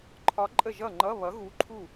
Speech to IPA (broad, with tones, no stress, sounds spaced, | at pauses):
ǃʰ ɒ˧˥ ǃʼ ə˥˩ ʒ ʌ˥˩ ŋ͡ǃ ʌ˧˥˧ β ʌ˩˥ ɣ u˧˥ ǃʰ u˥˩